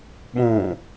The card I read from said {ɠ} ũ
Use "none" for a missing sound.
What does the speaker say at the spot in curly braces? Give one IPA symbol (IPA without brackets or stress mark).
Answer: ɓ